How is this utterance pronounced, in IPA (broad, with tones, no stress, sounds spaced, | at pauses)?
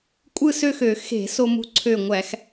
kʷʼ ɯ˥˧ s ø˥˧ x ø˧˩˧ x e̤˧˩˧ s o˧ m ṳ˧ ǀʰ ø˧˩ ŋʷ æ˧˩˧ x